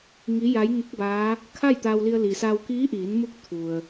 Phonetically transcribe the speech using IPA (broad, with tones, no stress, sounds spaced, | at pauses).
ŋ i˧˥ j a˧˥ j ŋ u˧˥ k̚ b aː˧˥ | kʰ a˥˨ j t̪ a˧ w l i˧ ə̯ l i˩ s a˧ w k iː˧˥ ʔ iː˩˧ n m u˧˥ k̚ t̪ʰ u˩ ə̯